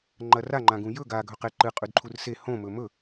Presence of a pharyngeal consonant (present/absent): absent